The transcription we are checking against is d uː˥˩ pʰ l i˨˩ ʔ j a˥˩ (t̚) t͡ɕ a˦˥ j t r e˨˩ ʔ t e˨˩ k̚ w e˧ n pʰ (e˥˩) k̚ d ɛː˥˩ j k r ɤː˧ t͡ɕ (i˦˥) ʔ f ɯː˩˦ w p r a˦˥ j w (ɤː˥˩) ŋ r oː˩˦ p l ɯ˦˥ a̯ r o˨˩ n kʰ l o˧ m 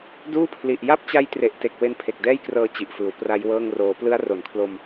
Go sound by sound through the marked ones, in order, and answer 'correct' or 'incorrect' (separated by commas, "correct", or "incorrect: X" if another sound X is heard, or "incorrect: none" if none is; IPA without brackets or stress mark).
incorrect: p̚, incorrect: e˨˩, incorrect: i˨˩, correct